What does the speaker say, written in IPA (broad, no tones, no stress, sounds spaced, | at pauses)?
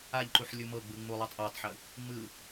a ʎ ǃ u ħ lʲ u m ɤ ɡ͡b ɯ ŋ͡m u lˠ ɤ tˤ ʔ a tˤ ħ ɯ | ŋ͡m ɯ